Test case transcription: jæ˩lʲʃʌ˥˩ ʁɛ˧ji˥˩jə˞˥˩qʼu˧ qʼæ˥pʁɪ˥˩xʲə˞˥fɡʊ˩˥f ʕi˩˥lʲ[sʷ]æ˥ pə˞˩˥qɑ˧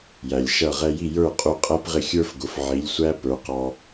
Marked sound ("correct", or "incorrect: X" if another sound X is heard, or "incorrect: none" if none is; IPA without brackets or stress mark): correct